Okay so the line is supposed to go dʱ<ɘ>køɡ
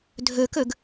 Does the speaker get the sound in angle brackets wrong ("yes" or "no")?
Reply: yes